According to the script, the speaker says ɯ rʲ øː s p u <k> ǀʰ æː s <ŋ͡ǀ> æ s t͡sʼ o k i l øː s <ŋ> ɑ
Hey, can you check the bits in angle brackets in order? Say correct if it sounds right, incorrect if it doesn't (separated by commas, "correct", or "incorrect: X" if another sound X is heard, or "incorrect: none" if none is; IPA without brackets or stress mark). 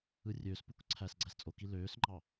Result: correct, incorrect: ɡ͡ǀ, incorrect: ŋ͡ǃ